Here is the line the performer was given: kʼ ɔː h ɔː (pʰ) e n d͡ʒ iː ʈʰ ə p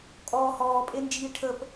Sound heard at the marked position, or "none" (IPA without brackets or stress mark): pʼ